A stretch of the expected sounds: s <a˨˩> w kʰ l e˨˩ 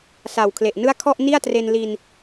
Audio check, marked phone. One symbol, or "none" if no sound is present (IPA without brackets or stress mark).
a˨˩